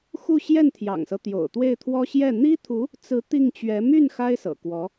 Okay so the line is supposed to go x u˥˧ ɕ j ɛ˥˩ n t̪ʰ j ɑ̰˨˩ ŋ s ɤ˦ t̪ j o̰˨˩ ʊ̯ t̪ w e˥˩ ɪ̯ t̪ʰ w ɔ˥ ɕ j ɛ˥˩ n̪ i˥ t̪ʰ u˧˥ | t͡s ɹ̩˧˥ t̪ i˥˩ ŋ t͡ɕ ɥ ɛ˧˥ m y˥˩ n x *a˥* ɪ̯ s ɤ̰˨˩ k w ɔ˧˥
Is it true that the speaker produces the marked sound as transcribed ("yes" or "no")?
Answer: yes